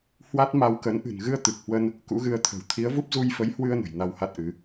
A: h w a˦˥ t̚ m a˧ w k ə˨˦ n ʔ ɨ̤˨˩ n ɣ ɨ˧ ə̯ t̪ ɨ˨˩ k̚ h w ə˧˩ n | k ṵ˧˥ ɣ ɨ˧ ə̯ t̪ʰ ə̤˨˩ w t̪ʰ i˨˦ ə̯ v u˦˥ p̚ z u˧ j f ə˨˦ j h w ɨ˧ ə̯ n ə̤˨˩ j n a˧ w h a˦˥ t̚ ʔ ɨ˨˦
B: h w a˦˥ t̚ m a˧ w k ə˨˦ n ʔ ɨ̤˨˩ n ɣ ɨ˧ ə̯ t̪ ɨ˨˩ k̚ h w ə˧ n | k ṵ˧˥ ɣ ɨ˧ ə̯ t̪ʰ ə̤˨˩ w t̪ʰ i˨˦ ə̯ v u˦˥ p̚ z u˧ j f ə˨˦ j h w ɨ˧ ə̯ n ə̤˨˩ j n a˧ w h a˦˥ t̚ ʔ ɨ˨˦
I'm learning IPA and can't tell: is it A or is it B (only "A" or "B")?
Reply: B